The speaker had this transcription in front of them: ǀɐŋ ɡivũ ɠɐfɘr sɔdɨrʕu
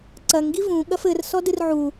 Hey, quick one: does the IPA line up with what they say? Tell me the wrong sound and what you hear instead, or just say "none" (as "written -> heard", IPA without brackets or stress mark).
none